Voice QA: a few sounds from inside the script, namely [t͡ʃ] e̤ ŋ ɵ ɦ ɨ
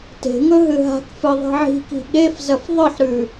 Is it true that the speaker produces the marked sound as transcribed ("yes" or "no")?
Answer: no